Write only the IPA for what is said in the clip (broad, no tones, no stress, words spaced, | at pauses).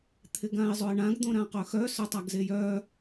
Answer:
t̪ʰɪɡãɪ̯zˤoɪ̯ɳãɡ d̪õɾãqœxœ sœtˤaɡzejœ